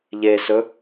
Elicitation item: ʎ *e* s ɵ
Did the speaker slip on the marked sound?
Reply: no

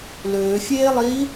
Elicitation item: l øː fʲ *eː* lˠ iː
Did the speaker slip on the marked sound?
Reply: no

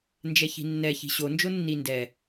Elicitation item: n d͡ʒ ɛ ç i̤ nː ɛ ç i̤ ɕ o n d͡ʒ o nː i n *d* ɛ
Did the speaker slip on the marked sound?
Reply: no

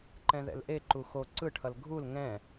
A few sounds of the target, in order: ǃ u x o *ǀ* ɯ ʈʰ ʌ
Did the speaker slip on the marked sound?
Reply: no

